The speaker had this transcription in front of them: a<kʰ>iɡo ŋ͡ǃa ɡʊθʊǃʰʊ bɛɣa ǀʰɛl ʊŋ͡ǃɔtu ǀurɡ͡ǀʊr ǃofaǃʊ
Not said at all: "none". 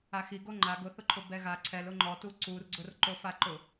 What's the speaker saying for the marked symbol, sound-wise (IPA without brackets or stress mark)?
x